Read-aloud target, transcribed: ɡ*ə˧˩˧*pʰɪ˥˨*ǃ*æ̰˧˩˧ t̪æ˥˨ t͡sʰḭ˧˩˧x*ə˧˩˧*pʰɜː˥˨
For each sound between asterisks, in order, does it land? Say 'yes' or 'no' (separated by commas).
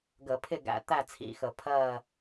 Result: yes, no, yes